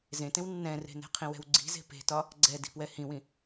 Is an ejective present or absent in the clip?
absent